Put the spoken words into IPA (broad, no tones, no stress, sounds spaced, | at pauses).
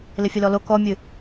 l ɪ fʲ ə l ɔ l o k ɔ mʲ ɨ